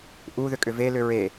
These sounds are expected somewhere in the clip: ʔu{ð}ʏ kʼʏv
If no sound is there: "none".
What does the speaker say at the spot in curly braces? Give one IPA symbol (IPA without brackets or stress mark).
ð